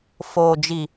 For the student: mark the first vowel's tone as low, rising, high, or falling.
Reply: low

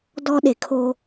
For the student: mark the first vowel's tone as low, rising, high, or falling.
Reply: high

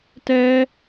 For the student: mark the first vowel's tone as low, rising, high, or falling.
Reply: high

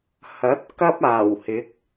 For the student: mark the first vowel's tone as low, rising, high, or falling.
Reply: rising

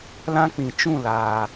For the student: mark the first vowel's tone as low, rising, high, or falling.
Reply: high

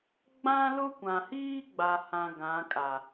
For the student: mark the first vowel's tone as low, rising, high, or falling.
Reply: high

